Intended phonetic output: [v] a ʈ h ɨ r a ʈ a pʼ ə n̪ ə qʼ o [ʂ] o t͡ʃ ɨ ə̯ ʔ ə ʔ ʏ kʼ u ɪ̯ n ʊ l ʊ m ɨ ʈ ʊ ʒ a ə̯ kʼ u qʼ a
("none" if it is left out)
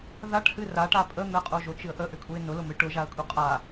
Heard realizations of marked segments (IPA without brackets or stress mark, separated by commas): ð, ʒ